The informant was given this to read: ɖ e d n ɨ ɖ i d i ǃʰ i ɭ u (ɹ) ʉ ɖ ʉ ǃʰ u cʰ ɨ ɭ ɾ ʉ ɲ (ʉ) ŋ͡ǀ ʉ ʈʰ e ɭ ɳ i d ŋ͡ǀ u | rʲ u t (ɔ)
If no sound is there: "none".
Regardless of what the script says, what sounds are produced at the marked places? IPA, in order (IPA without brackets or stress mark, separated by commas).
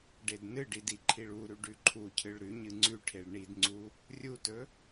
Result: ɾ, ɨ, ɵ